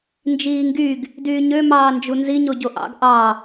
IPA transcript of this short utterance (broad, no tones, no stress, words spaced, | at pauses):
nd͡ʒiːŋɡyɡ | dyːɲø mɑːnd͡ʒunzi ɲoɟoʔɑ̰ɡ ʔɑ